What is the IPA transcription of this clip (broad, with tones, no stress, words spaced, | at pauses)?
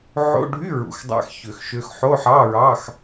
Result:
ʕo̰˧˥˧ɖʱy˧˥˧ ɹṵ˨˩xdˤæ̰˧˥˧xçø˨˩xʃø˧x ħo˧˥˧ħɑ˧˥˧ɹɑ˧˥˧x